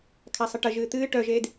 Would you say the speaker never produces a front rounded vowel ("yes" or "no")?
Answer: no